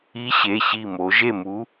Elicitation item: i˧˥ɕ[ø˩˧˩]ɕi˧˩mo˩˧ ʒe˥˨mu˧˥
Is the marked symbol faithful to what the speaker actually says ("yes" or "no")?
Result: no